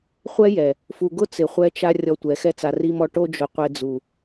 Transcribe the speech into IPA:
χʷ ɛ˦ j ɛ˨ | f u˧ ɡ ʊ˦ t͡s ɪ˨ χʷ ɛ˧ t͡ʃ a˧ rʲ ɔ˧ tʷ ɛ˨˦ x ɛ˦ t͡s a˧ r i˧ m ɔ˧ ʈ o˧ d͡ʒ ʊ˨ qʷ e˧ d͡z u˨

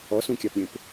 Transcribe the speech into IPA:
ɔ s ũ kʲ a p ɾʲ ẽ p

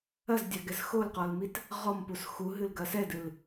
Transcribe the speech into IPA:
ɐ z dʲ a ɡ ɛ z x o l q ɔ l m i t | ʁ ɔ m p u s x u ɦ ɨ l ɡ ɐ s ɛ d ɨ l

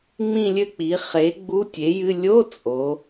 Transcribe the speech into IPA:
ŋ͡m ĩ˥˧ lʲ ɘ˥˧ k͡p i˩˥ χ e˩˥ ɡ͡b u˧˥˧ tʲ e˩˥ j ɨ˧˥˧ lʲ o˧˥˧ t͡sʼ o˩˥

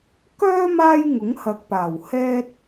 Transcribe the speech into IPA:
k œː˥ m aː˥ j ŋ ʊ˨˥ ŋ h ɐ˨ k̚ p aː˨˩ w h ɛː˧ t̚

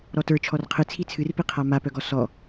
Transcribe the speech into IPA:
ɾ ɔ t ə˞ t͡ʃʰ ɔ r qʰ ɨ t͡sʰ i t͡sʰ ɨ r p i qʰ a m a p œ ɡ ɔ s ɔ

